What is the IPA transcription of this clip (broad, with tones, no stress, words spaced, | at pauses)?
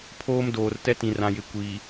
pʰoː˦mdoː˨r tɛ˦tĩ˨rã˨jɪ˨ kʷiː˨